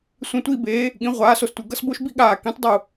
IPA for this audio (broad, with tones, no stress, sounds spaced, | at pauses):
sʷ ĩ˧˩ tʷ i˥˧ b eː˨˦ | ɠ ĩ˨˦ ʁʷ aː˨˦ s o˧˩ s tʷ ɯ˧˩ ɡ ʌ˥˧ s b o˥˧ ʃ b i˥˧ ɠ aː˧˩ k ĩ˨˦ tˤ dˤ u˧˩